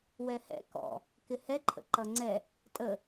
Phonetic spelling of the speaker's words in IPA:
wɛhɛ̰ kɔ̰ | kɪhɛǃʰə̰ ǃʌŋ͡ǀɛ | tʼə

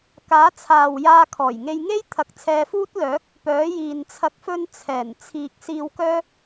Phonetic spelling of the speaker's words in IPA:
kaː˨˥t͡sʰaː˨w jaː˧kʰɔː˨˩jŋe˧jŋe˥j t̪ʰɐ˨˥k̚t͡sʰɛː˧fuː˥t̚lœː˨˥k̚ | pœː˨˥jiː˨n t͡sʰɐ˨k̚fɵ˧n t͡sʰɛː˨˩n t͡sʰiː˨k̚siː˧w kœː˥

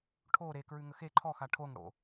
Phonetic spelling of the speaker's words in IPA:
ʈʰo ɾe kɹʉŋəxe ǃʰɔ xaʈʰoŋ ɽo̰

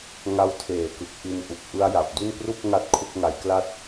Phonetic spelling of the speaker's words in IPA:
ŋa˦˥wtʰeː˨˩kɯ˨˩k̚ ʔi˧nʔu˨˩k̚ ʔɯ˦˥a̯ja˨˩p̚du˥˩n pru˥˩k̚ ŋa˥˩t̚kʰu˥˩k̚ŋa˧jkla˥˩t̚

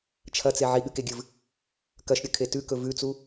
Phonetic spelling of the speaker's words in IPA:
t͡ʃʰɐt͡se ʕiɠɨkeɡʲɨv | kɐʃɾʲɵkʰe tʉkɵ vʉt͡su

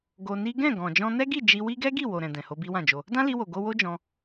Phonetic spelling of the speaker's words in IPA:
ɡo˧ni˦ ɡɛ̃˦˨ɡɔ̃˨ d͡ʒɔ̃˧nɛ˦ɡi˦˨ d͡ʒi˧wi˦ ɡɛ˦ɡi˦˨ wo˨ɾɛ̃˨ dɛ̃˨ho˧bi˦wã˦˨ d͡ʒo˧ | dã˦li˧wo˨ ɡo˧wo˦d͡ʒɔ̃˧

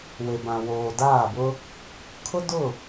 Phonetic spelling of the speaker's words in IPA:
we˨bã˨ woː˨ daː˦˨bʊ˦ | kʰʊ˦ dʊ˦˨

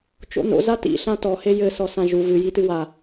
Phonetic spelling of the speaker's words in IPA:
t͡ʃo̰no̰ zatḭ ɬãtɔ hejɘ sɔsãʒu vɨ jitɨwa

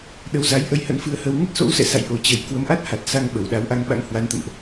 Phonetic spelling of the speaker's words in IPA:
ɗə˨˦wza˨˦j ʔə˧jhə̰˧˥nfɨ˧ə̯hə˧w ŋə˦˥t̚so̰˧˥wsɛ̰˧˨sa̰˧˨j ʔo˨˩t͡ɕə˧˩j kwə˨˦mʔa˦˥t̚ha˨˩t̚sa˧ŋ ɓə˧˩wɗa˨˦wʔa˧ŋ ɓa̰˧˥ŋhwa˨˦nt̪ə̰˧˨mʔ

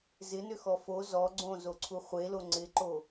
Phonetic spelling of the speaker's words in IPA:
zɪnʏxɔ fo zɔ ɡ͡ǀõzoǀʰu χʷelo ŋ͡ǀɪǃo

